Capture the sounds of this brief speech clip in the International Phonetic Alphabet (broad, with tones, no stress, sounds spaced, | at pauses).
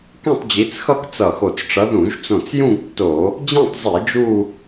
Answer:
k ɛ̃˥˧ tˤ d͡ʑ i˨˦ t͡s x ʌ˥˧ k t͡s ʌ˧˩ x o˧˩ t͡s ʈ͡ʂ ʌ˨˦ ð ũ˧˩˧ ʒ t͡s õ˧˩ t͡s j ũ˥˧ ɡ tː o˧˩˧ | d͡ʑ ẽ˥˧ tˤ zˤ i˧˩˧ d͡ʒ u˥˧